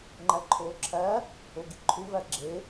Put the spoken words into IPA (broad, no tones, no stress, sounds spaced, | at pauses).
ŋ͡ǃ æ ǃʰ oː ǁʰ æ | o ɡ i ǃʰ u v æ ɡ͡ǁ e